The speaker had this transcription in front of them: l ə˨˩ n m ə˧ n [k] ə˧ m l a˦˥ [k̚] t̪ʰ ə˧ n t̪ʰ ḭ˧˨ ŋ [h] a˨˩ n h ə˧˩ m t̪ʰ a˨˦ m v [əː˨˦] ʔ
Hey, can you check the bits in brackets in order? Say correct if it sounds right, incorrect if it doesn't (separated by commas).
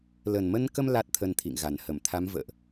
correct, incorrect, incorrect, incorrect